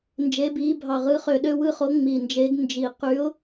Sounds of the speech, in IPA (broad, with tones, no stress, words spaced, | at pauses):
nd͡ʒe˧˥biː˧˥bʱɑ˧˩ʁɯ˧˥ χø˧˩ɗø˥˧wɯ˥˧χo˧˥ ŋ͡mi˧˩nd͡ʒe˧˥ɡ nd͡ʒi˧˩ qy˧˥ʊ̯